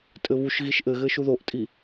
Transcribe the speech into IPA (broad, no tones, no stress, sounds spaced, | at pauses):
tʼ ɘ β u ʃ ɣ i ʃ ʔ ɘ ɣ ɘ ʃ u ð o ʔ tʼ i